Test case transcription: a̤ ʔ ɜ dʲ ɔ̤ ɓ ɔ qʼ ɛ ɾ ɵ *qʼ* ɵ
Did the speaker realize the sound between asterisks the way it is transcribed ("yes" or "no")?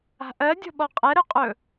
yes